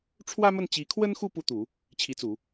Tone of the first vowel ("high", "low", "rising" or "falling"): high